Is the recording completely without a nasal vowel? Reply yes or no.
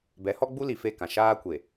no